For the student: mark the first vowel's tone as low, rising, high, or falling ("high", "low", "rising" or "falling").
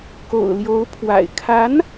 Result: low